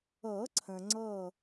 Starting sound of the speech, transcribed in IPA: ɤ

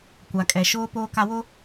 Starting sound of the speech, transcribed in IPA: kʷ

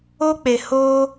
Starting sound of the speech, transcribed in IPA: o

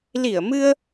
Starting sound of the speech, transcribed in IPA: l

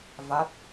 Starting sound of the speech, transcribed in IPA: v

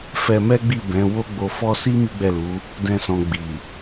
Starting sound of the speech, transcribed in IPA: f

